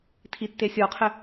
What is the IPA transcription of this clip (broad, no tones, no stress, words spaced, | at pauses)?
tʰitːesʲɔqʰɘ